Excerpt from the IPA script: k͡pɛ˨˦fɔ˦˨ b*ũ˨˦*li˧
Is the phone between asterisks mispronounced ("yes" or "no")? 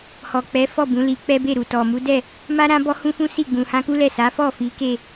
no